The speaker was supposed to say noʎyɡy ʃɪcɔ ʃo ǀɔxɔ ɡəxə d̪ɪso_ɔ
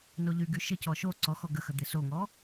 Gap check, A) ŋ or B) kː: A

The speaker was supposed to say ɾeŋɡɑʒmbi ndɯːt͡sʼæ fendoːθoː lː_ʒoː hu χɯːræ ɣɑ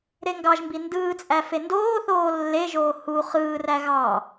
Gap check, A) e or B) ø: A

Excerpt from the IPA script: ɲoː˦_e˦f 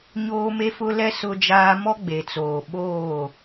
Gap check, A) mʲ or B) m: B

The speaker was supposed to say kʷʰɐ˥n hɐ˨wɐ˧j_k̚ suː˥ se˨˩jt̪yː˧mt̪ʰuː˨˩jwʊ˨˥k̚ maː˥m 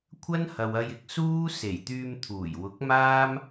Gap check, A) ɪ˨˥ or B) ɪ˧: B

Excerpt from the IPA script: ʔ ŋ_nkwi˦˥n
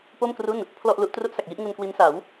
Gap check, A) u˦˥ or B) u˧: B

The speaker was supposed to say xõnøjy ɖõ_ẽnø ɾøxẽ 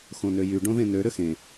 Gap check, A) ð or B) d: A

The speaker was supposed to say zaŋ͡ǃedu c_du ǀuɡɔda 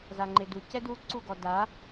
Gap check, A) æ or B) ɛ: B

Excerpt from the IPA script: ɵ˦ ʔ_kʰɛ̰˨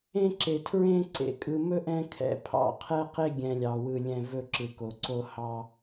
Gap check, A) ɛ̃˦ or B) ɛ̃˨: A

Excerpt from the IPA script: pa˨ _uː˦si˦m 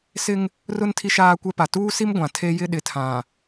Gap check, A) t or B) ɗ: A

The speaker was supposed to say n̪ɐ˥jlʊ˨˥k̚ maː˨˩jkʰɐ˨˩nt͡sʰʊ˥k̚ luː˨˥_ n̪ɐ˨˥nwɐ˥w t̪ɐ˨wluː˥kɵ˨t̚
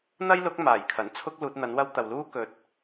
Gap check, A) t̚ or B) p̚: A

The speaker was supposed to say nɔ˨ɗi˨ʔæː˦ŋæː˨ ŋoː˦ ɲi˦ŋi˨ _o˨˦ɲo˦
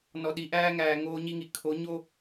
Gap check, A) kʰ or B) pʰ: A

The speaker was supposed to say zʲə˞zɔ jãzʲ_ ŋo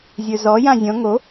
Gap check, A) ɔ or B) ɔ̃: B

